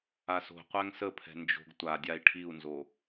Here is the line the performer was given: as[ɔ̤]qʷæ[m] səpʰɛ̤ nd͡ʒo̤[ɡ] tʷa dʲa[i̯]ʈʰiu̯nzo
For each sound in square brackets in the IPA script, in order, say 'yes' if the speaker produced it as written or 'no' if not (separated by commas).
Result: no, no, yes, yes